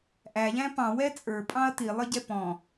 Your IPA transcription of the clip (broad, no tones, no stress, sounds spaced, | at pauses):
ʔ æ ʎ æ̃ p ɑ̃ w ɛ t͡sʼ ə˞ pʼ ɑ̃ ɐ̯ t i lˠ ə ɟ ɛ p ɔ̃